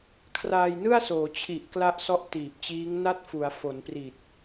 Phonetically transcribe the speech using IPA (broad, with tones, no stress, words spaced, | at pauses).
kʰraː˧jnɯ˥˩a̯soː˩˦ t͡ɕʰi˨˩ʔkla˦˥ʔ sɔ˦˥ʔtiː˨˩p̚t͡ɕiː˦˥ŋ na˥˩t̚fu˩˦a̯ fo˩˦n pri˨˩t̚